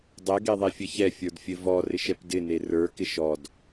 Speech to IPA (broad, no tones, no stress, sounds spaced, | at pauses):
dˤ ɛ ɡ e ðˤ e fʲ ɘ ç ɛ fʲ ə˞ d fʲ ɘ v ɔ r ɪ ʃ ɛ p d ɪ n e r ə˞ k ɪ ʃ ɔ d